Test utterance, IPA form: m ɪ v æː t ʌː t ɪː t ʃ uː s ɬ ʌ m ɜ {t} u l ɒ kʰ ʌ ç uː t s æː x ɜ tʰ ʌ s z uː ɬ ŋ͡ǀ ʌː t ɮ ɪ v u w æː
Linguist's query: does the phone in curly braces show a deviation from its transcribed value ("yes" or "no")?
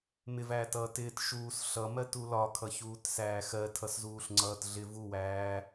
no